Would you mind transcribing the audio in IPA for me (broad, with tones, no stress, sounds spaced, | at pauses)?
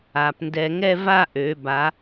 a˩˧ p n d ɛ˧ ŋ ɛ˥˧ v a˥˧ ʔ ø˩˧ b a˩˧